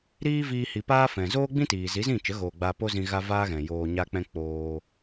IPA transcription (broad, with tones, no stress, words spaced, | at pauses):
ɾiː˦ viː˧hi˨paː˦ fɛ̃˨zoː˦ɡ͡bĩ˦tiː˨ zi˨˦zĩ˦˨t͡ʃə˨˦ɣoː˨ ɡ͡ba˧po˦zĩ˧ ɣa˦vaː˦ɣɛ̃˨ joː˧ɲa˦k͡pɛ̃˦ k͡poː˧